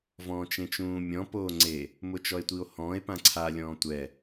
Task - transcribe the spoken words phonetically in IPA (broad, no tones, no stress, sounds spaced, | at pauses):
v ɔ̃ː t͡ʃ ẽ t͡ʃ ũː mʲ ɔ̃ p oː ŋ͡ǀ e | m ʊ t͡ʃ ɔ e̯ tʷ i o̯ h ɔ̃ː e̯ p ã ǀʰ a lʲ ɔ̃ː tʷ ɛ